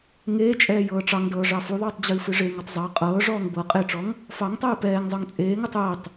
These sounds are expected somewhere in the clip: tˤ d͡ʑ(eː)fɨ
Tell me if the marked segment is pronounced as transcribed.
no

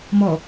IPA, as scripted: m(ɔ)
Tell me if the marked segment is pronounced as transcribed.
yes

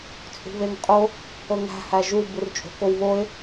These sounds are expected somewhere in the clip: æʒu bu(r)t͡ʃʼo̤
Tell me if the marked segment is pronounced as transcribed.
yes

